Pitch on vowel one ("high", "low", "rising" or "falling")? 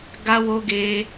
high